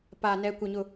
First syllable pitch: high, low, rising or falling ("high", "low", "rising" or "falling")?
low